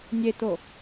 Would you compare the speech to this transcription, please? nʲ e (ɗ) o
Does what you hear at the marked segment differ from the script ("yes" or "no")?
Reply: yes